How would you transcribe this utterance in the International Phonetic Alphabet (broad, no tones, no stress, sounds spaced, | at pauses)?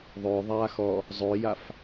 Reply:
ðˤ ʏː ðˤ aː x ɔ | zˤ ʏː j a f